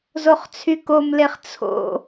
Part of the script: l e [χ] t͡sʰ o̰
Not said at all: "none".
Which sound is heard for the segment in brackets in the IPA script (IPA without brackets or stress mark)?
χ